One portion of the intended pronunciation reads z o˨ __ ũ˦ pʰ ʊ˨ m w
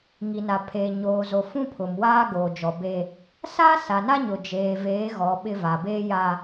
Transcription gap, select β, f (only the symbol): f